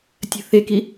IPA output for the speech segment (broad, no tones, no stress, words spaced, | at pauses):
tʲə̤θeki